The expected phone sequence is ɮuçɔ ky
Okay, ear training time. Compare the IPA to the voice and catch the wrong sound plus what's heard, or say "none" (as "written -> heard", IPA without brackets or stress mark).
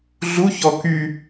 none